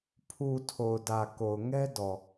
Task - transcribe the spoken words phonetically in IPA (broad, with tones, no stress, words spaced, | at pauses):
pʰu˨ tʰo˨ʊ̯dä˨ ko˨ʊ̯ŋɛ˦dɔ˨